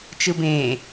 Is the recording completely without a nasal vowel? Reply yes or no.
no